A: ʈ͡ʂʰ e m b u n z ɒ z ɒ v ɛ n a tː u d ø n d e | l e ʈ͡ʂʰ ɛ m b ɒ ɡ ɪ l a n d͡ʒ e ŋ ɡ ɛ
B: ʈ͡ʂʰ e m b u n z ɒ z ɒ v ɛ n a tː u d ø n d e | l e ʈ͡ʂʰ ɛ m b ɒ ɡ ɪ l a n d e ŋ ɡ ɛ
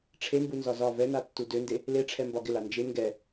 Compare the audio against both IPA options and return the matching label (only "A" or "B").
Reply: A